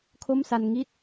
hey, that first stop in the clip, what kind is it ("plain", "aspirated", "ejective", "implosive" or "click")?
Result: aspirated